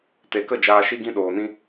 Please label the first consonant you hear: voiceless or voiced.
voiceless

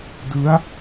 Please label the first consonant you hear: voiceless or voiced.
voiced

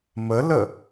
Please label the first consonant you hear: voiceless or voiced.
voiced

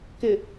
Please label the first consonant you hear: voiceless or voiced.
voiceless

